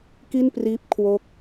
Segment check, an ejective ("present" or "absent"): absent